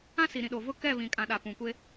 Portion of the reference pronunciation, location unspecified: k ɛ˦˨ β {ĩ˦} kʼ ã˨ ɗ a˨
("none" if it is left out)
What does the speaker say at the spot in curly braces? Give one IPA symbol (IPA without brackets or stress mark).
ĩ˨